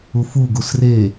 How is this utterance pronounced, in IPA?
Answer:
ufu ɡusre

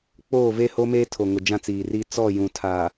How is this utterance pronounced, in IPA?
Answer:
k͡poː˦˨ve˦ ho˦meː˦tʰo˨ ŋʊ˨d͡ʒã˦t͡siː˨riː˦ t͡sɔ˦˨ jũ˨tʰa˨

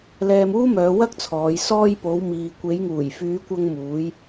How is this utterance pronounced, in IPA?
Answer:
lɛː˧muː˥mœː˨˧wɐ˥k̚ t͡sʰɔː˨˧j sɔː˧j po˨˧wmiː˨ kʷe˨˧jŋuː˨˩jfyː˨˧kʷɐ˧ŋ muː˨˧j

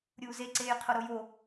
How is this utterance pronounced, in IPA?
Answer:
ɾʲuːzeǀeːj qʰoɾojo

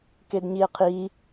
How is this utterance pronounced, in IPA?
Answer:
kedɲie̯qʰi

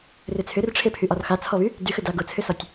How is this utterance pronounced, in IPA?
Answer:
rʏt͡sʰʏrʈ͡ʂʰepʰy ʔɒrxat͡sʰɔβy | dyxʏda ɡʊt͡sʰʏsɒtʲ

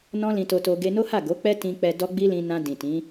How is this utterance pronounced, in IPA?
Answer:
nɔ̃˦lĩ˧to˧to˧ ɡe˧no˦ha˦˨ ɡo˨˦k͡pɛ˦tĩ˧k͡pɛ˧ dɔ˦ɡ͡bi˦lĩ˧ nã˧dĩ˨ tĩ˨˦

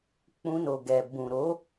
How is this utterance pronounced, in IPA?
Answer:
k͡pũ˧no˨ɡɛ˨ bũ˨ɾo˨˦

